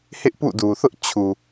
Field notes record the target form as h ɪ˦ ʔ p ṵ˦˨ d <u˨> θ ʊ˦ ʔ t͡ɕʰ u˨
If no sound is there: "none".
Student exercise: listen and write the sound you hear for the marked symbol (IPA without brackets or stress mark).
u˨